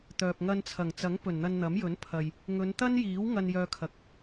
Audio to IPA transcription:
t̪ œː˨ p̚ ŋ ɐ˧ n t͡sʰ ɐ˨˩ ŋ t͡s ɐ˨˥ ŋ p ɵ˨˩ n n̪ ɐ˧ n n̪ ɐ˨˥ m j ɵ˨˥ n pʰ ɐ˨ j | ŋ ɵ˨˧ n t̪ ɐ˥ n j iː˨˥ w ŋ ɐ˧ n j œː˧ kʰ ɐ˨ k̚

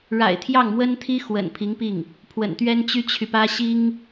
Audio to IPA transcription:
ɻ a̰˨˩ ɪ̯ t̪ʰ j ɑ˥˩ ŋ m w ə˥ n t̪ʰ i˥ x w ə̰˨˩ n pʰ i˧˥ ŋ p i˥˩ ŋ | pʰ w ə̰˨˩ n t̪ ɥ ɛ˥ n t͡ɕ y˥ t͡ɕʰ y˨ p ä˥ ɕ i˥ ŋ

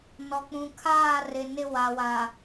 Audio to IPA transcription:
n ɔ˨ k͡p ũ˨ kʰ aː˦˨ r ɪ˨ n ɪ˦ w a˨ w a˨

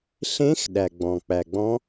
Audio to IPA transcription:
ɬ ẽ˧˥ x ɗ æ˩ ɡ͡b ɔ̃˩ k͡p æ˩ ɡ͡b ɔ̃˧˥

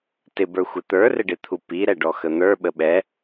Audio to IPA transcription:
t ɪ b ə˞ xʷ ɪ t̪ ə˞ r ɪ ɖ ɪ t̪ʰ u p i ɾ ɛ ɖ ɔ x ə n̪ ə˞ ɓ ə ɓ ɛ

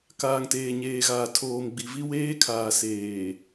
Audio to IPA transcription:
k aː˨ ŋ t eː˨ ɲ eː˨ ɣ aː˨ tʰ oː˨ m ɡ͡b i˨ v i˦ w eː˦ kʰ aː˨ s eː˨

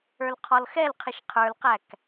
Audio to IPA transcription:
ə˞ l qʰ ɔ l x ɛ l qʰ ɪ ʃ qʰ ə˞ l q æ k

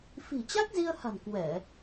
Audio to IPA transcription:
f i̤˨˩ t͡ɕ a˦˥ k̚ z i˧ ə̯ h a̤˨˩ n k w ɛ˧˩˨

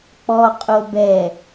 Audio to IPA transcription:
k͡p ɔ qʼ o b ɛ

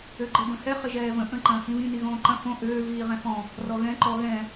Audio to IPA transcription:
ø ɡ͡ǃ i b ə̃ h ɛ χ ɪ ʒ ɛː v ə̃ ʔ ə̃ ǃ ɐ̃ː h ĩ β ĩ n i ɣ õː ǃ ɐ̃ f õ ʔ øː v iː ʁ ɛ̃ f ɔ̃ | r ɔ ɣ ɛ̃ ǃ ɔ ɣ ɛ̃

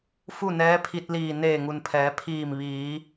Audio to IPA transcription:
f u˥˨ n ɛː˧˥ pʰ i˧ t̚ l iː˧˩ n eː˧˩ ŋ u˩ n pʰ ɛː˩˧ pʰ iː˧˩ m ʋ iː˩˧

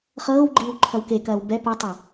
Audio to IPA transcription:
χ ɤː w ɡ͡ǃ iː w ǃʰ ɐ w k e k ɐː w b ɛ p ɐ tˤ ɤ

